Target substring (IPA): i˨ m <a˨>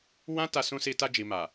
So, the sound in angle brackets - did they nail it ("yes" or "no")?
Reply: yes